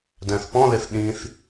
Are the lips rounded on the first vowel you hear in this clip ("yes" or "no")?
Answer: no